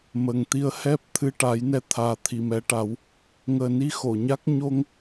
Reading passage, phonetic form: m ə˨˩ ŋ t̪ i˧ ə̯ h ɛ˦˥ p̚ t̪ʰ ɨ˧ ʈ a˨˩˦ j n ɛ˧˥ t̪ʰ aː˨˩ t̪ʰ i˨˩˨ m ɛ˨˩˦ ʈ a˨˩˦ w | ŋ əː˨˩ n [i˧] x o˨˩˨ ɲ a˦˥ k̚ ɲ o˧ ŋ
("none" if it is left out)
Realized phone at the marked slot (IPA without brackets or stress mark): i˧